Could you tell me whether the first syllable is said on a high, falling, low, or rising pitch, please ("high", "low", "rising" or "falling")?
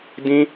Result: high